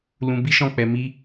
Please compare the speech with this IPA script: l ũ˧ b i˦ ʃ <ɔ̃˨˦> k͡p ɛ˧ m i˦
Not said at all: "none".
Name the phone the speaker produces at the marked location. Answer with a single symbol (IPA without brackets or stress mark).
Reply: ɔ̃˦˨